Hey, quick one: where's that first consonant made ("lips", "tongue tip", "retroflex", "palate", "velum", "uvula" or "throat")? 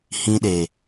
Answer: throat